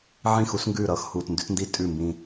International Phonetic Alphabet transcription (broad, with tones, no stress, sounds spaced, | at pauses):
ʕ ĩ˦˨ x u˦ s ŋ ɡ ʉː˦˨ ɾ ʌː˦ x h uː˨ t n d ʉ˦ t n d i˦ tʼ ʉ˦˨ m b ĩː˦